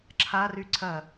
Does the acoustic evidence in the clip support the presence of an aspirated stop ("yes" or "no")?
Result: yes